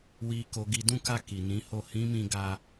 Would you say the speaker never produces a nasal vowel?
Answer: no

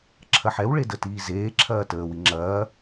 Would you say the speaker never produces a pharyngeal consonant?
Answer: no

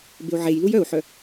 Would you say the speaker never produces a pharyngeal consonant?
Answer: no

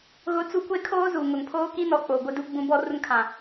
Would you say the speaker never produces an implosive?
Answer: yes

